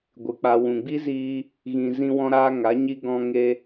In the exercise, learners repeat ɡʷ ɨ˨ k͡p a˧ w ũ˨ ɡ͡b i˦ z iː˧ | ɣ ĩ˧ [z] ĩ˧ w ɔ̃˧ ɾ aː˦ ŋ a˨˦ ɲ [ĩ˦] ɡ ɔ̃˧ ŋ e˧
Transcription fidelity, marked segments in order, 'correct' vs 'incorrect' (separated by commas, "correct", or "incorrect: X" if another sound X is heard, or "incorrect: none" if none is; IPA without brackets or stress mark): correct, incorrect: i˦